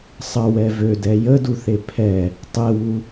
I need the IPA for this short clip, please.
sˤ ə w ɛ v ø d ɛ j ə d u θ e pʰ ɛ | tˤ e w u

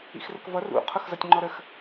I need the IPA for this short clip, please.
ḭ x r ə̰ k v ʌ r ṵ qʰ ʊ x z ʌ tʲ ŋ͡ǃ ɔ ɾ ə x

